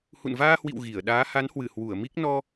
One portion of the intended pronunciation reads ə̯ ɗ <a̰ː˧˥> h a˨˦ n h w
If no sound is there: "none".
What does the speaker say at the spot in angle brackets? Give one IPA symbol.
aː˨˦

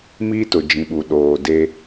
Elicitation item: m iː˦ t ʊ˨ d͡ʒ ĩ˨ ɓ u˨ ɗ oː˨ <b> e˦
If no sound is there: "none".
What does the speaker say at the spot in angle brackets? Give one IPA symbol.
d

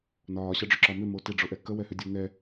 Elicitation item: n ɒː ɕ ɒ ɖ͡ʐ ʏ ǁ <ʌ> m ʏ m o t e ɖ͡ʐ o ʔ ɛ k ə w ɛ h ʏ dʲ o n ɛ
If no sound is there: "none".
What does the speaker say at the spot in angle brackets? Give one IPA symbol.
ɒ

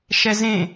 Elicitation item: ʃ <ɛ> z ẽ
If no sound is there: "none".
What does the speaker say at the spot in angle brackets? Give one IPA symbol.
ɛ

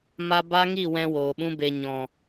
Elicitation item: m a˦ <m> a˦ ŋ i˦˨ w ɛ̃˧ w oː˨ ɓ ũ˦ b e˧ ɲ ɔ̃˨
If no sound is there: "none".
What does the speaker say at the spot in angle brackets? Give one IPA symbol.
b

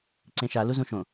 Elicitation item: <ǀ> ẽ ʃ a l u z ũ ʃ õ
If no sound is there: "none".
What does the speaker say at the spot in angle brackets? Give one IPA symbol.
ǀ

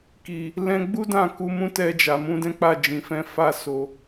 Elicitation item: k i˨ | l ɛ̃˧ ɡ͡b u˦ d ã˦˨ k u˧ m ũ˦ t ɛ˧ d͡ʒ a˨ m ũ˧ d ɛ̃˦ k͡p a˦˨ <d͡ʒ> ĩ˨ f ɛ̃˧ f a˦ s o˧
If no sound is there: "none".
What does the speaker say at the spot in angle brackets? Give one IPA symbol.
d͡ʒ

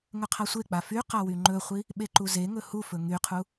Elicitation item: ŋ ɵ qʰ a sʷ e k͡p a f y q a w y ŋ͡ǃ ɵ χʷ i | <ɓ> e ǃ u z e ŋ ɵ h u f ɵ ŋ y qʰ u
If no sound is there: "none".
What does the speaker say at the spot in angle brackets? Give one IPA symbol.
ɓ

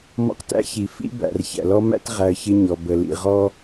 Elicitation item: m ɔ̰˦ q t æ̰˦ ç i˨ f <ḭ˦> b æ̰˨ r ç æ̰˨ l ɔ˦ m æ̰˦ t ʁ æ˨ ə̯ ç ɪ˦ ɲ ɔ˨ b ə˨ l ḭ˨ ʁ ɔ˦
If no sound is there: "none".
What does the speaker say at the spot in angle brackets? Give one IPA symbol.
ḭ˦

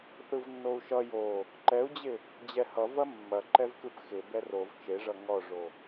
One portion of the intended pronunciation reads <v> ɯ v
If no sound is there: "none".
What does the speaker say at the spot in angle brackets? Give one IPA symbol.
θ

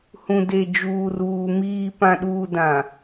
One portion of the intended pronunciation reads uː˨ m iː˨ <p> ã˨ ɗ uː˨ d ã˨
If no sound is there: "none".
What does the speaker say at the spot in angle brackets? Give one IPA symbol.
p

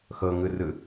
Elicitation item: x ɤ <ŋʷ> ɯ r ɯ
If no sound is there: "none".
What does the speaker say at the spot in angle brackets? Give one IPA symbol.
ŋ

